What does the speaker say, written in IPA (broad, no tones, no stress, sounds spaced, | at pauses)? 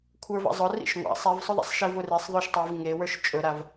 kʷʰ ə˞ v a̰ zˤ ʊ r ḭ ʃ ŋʷ a̰ sˤ i v sˤ ʊ ðˤ a̰ sˤ ʃ i v ʊ r i sˤ ðˤ ɵ ʃ tˤ i v ŋ e w ə˞ ʃ t͡ʃʼ ɵ ɾ a v